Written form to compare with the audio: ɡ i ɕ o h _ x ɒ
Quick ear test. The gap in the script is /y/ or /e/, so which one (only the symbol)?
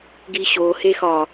e